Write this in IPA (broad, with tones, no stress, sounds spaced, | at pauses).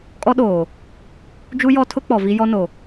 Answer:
kʼ ɔ˦ ɗ oː˨ | d͡ʒ u˦ j ɔ˦ tʰ ʊ˦ k͡p ɔ˨ v i˦ j ɔ˦ n o˨